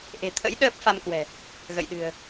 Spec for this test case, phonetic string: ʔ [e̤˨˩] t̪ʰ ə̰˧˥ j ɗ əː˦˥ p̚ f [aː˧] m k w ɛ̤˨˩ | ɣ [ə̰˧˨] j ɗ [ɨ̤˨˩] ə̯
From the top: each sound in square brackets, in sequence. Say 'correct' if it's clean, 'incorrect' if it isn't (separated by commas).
correct, incorrect, correct, correct